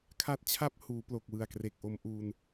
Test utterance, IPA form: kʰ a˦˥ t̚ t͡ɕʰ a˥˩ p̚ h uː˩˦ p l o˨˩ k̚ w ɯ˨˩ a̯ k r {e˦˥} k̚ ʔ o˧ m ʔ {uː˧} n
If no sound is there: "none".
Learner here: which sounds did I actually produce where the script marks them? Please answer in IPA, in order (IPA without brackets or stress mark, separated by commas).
e˨˩, uː˧